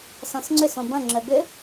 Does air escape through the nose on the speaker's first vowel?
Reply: yes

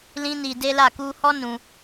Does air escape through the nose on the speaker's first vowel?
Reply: yes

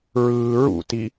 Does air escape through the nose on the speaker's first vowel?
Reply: no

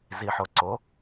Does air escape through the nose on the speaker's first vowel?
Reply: no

